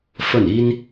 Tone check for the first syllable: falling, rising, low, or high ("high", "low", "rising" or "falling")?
falling